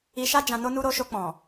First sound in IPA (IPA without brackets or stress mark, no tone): i